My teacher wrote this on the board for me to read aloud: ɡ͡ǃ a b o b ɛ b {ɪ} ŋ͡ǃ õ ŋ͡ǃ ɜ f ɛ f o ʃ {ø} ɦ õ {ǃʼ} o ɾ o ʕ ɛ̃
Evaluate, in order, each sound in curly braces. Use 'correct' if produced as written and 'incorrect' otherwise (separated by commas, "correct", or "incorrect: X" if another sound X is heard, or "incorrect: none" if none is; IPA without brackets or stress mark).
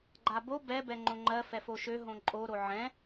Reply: incorrect: ɛ, correct, correct